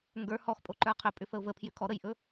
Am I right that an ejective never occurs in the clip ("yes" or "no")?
no